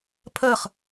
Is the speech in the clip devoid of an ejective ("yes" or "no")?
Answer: yes